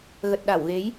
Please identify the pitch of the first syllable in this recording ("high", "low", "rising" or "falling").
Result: low